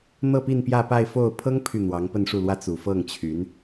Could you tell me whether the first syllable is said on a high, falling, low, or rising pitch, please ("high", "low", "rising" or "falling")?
falling